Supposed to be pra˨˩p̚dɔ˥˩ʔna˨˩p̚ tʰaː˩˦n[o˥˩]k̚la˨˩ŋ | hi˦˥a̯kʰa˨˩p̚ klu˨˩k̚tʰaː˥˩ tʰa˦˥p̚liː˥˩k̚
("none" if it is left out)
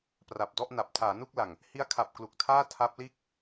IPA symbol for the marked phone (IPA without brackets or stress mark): u˥˩